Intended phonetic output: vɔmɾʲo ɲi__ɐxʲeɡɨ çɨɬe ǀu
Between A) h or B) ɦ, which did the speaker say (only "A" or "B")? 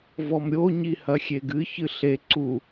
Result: A